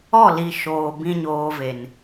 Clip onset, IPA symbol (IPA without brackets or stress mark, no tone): ɔ